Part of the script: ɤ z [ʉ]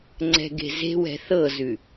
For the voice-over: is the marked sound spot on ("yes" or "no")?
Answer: yes